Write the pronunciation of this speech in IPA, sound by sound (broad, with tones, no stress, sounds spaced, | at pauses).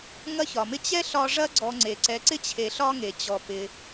ŋ ɐ˦ ç ɒ˩ m ɪ˦ t͡ɕ ɛ˥ ɬ ɒ˦ ʐ ɐ˦ ɡ͡ǀ ɔ˨ ŋ͡ǀ e˩ ǀ ɛ˨ ǀ ɪ˥ t͡ɕʰ e˩ ɬ ɒ˦ ŋ e˩ t͡ɕ ɔ˩ p ɪ˩